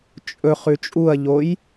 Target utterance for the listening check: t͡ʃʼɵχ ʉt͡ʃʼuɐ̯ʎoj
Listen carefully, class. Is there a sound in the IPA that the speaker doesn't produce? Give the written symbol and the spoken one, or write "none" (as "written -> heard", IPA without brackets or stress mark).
none